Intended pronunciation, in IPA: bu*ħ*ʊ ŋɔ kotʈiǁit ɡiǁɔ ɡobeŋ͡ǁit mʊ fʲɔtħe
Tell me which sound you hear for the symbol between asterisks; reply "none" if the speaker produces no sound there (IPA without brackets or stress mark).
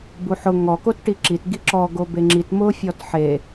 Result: ħ